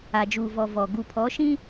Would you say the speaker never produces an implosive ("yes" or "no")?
yes